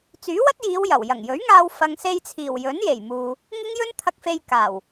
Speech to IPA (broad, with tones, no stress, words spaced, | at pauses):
t͡syː˨˥wɐ˥t̚jiː˨˧w jɐ˨˩w jɐ˨˩ŋjɵ˨˥ɥŋaː˧w fɐ˨ŋse˧jt͡sʰiː˨˩w jɵ˨˥nje˨˩jmuː˨ | ŋɪ˥ŋjɵ˥nt̪ʰɐ˧k̚fe˧j kaː˨˩w